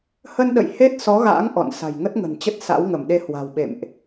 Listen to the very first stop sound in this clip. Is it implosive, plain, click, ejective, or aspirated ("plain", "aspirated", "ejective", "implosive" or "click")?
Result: implosive